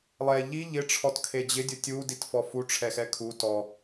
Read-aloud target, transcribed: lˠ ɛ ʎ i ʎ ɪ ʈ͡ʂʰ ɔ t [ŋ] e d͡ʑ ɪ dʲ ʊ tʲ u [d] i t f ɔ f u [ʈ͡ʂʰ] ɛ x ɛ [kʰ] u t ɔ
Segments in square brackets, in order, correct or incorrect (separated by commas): incorrect, correct, correct, correct